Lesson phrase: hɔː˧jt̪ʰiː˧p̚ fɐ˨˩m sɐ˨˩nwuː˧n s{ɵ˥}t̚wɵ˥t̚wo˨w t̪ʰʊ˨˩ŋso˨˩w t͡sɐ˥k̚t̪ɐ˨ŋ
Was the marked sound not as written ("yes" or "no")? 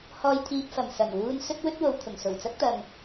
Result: no